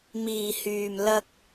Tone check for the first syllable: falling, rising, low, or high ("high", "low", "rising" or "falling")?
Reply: low